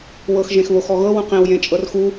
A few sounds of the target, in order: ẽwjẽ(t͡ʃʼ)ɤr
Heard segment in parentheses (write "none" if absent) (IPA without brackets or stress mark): t͡ʃʼ